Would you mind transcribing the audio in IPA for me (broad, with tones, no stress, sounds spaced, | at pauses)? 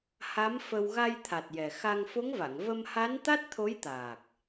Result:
h a˧˥ m f ə˧ w ɣ a˧ j t̪ʰ a˨˩ t̚ j ɛ˨˩ x a˧ ŋ f o˧˥ ŋ v a˨˩˨ ŋ v ə˧ m h a˧˥ n t̪ a˦˥ t̚ t̪ʰ o˧˥ j t̪ aː˨˩ k̚